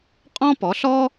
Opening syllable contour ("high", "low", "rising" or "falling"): high